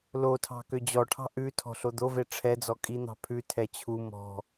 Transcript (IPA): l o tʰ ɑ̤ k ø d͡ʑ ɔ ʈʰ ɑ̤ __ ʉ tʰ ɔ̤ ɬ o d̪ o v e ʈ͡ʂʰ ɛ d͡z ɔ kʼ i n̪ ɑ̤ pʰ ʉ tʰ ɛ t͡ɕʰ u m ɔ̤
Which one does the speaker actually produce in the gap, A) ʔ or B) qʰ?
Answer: A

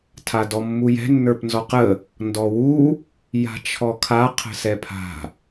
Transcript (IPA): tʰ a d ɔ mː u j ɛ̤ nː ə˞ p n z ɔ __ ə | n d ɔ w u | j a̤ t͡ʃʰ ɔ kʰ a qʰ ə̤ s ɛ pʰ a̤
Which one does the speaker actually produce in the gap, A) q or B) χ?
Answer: A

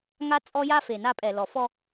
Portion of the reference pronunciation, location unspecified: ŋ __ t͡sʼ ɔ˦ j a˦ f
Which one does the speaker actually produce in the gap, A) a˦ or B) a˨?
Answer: A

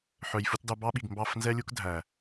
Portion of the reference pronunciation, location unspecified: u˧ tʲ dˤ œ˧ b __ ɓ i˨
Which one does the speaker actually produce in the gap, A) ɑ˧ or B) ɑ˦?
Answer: B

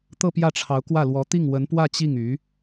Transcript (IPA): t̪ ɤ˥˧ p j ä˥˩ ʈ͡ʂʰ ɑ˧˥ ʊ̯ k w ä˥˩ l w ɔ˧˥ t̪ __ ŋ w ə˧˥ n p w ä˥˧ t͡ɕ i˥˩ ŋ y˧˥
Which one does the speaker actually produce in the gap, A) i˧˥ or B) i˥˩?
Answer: B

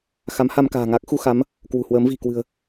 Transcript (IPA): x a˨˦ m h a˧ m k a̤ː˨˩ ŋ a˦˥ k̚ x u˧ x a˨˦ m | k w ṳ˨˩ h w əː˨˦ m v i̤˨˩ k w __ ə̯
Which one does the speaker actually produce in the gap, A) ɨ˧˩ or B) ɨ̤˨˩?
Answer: B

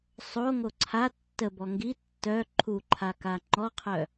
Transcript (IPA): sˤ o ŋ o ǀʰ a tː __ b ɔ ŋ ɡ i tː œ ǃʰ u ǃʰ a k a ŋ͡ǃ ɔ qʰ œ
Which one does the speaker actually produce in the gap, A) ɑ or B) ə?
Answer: B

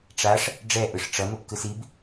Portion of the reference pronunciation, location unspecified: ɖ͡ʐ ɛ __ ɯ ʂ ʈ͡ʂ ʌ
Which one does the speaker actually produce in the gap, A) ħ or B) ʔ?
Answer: B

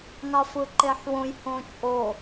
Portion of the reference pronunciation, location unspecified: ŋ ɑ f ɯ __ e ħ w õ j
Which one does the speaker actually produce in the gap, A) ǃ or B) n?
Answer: A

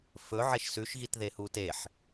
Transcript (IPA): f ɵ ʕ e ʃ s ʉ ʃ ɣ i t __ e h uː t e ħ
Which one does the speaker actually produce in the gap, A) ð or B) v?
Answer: A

